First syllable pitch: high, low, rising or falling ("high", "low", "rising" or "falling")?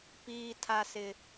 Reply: low